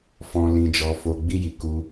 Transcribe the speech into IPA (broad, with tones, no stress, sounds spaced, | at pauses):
f ɔ̃˨ l ĩ˨ d͡ʒ ɔ˧ f o˧ ɡ͡b i˦ j i˧ k u˧